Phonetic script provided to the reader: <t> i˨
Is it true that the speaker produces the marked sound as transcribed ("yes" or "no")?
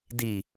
no